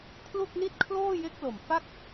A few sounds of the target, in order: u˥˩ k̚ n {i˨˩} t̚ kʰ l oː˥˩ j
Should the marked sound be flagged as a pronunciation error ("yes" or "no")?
yes